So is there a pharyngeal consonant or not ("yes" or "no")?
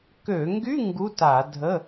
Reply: no